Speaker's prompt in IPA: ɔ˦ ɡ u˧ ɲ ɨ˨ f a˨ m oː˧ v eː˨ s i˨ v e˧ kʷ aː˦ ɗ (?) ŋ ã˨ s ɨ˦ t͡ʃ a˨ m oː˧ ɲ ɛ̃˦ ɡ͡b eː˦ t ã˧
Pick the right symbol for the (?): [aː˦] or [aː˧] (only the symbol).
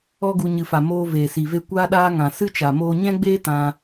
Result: aː˦